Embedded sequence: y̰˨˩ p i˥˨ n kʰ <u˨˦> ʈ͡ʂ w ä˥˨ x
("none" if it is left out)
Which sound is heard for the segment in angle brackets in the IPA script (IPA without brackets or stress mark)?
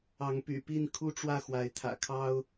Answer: u˦